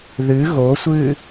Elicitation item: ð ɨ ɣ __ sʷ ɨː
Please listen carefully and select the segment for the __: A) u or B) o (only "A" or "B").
B